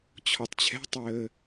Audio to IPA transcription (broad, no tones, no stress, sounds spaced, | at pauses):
t͡ɕʰ ɔ tˤ t͡ɕʰ ɛ̤ tˤ əː